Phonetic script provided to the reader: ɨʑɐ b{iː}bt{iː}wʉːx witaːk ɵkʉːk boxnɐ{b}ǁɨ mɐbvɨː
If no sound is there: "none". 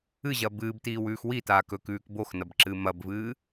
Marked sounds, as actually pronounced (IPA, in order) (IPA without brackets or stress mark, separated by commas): ɨː, iː, b